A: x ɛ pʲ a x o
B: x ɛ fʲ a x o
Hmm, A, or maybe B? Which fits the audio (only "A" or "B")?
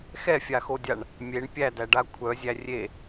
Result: B